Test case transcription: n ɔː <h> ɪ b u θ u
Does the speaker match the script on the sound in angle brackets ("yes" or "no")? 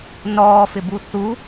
no